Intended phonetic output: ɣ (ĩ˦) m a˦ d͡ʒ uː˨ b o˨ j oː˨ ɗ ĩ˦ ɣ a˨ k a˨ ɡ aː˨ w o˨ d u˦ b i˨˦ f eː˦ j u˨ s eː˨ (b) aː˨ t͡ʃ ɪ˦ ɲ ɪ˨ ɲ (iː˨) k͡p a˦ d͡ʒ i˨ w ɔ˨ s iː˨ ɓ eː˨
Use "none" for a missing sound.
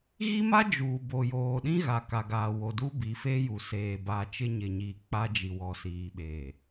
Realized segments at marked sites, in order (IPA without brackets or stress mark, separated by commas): i˦, b, iː˨